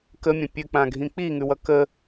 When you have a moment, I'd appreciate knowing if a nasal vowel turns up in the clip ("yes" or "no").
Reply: yes